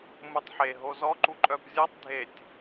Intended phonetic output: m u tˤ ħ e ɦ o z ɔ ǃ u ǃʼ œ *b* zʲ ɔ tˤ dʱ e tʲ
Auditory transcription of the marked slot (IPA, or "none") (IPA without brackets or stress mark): b